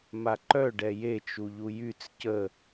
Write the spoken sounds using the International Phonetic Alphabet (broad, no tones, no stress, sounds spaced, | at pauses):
m a ǃ œ ɖ ɛ j e t͡ʃ u ʎ u j y t͡s c ə